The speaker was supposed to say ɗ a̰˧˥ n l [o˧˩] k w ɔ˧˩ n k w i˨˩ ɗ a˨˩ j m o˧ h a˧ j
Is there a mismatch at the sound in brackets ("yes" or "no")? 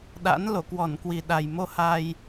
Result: no